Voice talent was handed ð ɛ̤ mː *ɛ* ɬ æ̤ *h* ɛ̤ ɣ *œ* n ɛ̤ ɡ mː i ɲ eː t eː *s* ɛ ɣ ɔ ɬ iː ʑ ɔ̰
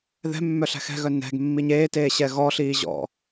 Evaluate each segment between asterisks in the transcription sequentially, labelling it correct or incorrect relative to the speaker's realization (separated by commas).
incorrect, incorrect, correct, incorrect